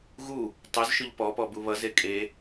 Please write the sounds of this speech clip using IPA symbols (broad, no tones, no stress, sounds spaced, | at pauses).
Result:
ɣ u | tˤ ɵ z ʃ ʊ ʎ p ɔ p ɔ b u β ʌ z e kʼ e